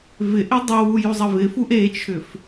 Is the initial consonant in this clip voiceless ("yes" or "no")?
no